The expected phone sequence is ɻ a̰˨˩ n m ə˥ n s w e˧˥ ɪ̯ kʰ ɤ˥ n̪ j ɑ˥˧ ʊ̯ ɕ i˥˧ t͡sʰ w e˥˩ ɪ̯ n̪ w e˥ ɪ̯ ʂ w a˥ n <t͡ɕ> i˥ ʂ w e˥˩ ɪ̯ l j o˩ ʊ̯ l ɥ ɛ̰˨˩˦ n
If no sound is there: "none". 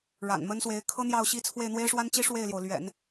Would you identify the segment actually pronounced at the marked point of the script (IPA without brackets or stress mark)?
t͡ɕ